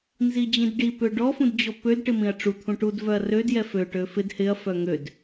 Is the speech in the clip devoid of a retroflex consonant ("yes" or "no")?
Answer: no